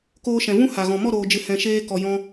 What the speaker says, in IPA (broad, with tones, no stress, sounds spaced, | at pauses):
k oː˧ ʃ ɛ̃˨ v ũ˦ h a˨ ɣ ɔ̃˨ m ɔ˦˨ ɾ oː˨ d͡ʒ ɨ˨ h ɛ̃˨ ʃ eː˧ k ɔ˨ j ɔ̃˧